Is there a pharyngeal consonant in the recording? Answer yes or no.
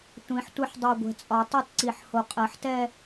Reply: yes